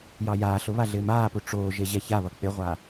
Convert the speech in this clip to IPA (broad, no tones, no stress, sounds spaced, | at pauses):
j ɑ j aː ɬ ʊ β a ɮ ɪː m aː p u ʈ͡ʂ oː ʒ e ʑ ɛ ç a β ʌ k͡p ɪ ʁʷ a